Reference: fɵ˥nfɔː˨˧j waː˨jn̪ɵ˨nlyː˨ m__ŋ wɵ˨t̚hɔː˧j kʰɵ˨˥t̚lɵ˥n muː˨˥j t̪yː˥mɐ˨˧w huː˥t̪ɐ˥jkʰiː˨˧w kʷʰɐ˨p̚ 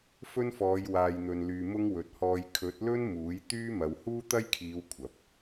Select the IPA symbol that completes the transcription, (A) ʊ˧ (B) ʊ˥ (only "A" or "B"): B